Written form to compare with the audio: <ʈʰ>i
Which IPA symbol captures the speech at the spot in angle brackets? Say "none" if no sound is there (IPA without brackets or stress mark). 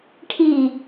ʈʰ